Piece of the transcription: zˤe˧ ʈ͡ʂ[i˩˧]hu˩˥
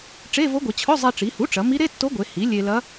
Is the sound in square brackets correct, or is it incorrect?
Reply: correct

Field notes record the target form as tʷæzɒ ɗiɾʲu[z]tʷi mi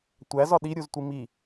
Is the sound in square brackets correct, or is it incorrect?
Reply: correct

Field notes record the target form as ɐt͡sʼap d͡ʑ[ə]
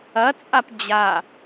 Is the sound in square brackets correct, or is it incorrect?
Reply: incorrect: a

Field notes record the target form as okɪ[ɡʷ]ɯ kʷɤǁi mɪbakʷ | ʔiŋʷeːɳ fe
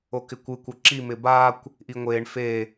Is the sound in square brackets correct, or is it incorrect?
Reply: incorrect: kʷ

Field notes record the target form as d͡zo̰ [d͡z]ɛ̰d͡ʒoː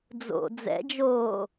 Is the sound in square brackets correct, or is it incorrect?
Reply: correct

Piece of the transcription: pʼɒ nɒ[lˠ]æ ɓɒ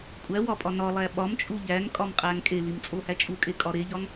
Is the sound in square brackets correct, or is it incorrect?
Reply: correct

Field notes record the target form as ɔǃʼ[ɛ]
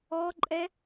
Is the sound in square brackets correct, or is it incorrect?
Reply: correct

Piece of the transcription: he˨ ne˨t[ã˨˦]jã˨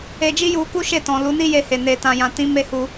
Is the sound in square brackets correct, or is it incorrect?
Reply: incorrect: ã˨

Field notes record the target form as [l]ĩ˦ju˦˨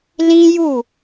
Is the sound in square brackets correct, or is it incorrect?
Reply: correct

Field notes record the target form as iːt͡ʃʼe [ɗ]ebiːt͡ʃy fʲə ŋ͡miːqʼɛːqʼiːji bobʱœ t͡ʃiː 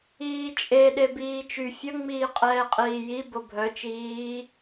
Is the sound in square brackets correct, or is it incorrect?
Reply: correct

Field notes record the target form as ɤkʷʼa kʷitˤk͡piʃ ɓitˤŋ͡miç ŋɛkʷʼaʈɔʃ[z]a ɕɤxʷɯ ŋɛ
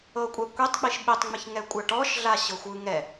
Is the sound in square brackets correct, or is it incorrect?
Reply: incorrect: ɮ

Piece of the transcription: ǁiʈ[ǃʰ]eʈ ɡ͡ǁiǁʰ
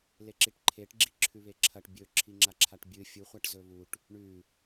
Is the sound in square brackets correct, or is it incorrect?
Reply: correct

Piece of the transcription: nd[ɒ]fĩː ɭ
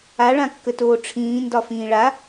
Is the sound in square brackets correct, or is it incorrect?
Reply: correct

